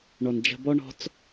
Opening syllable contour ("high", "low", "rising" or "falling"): low